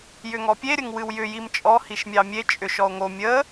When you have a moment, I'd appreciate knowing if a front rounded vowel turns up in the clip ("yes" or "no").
yes